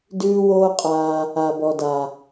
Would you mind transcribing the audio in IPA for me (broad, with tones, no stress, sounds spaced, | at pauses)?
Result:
d ʉː˦ w oː˦ qʼ aː˧ | a˨ b ɔ˨ d a˨